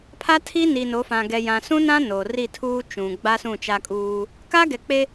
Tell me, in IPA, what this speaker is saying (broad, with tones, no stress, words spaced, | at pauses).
pʰa˦tʰi˦ ni˨no˨˦fã˨ ɡɛ˨jã˨sũ˦nã˦ no˨ ri˦˨tʰuː˦ t͡ʃũ˨ ɡ͡ba˦sũ˦˨t͡ʃa˦kʼuː˦ | ka˦ɡɛ˨k͡pe˦